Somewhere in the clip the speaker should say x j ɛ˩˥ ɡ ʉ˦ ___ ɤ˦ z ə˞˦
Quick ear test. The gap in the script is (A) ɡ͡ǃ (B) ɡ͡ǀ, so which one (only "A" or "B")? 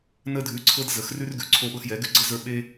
B